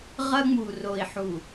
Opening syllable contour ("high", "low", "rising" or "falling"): high